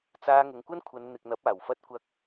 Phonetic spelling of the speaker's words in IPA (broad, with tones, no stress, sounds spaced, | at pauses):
t͡s aː˧ ŋ ʊ˨ ŋ kʷ ɐ˥ n kʷʰ ɐ˨˧ n n̪ ɪ˨ k̚ n̪ ɐ˨˥ p̚ aː˨˩ w f ɐ˧ t̚ kʷ ɐ˧ k̚